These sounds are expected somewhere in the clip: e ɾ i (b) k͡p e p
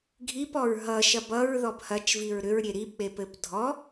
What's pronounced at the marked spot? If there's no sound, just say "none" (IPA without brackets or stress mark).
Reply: b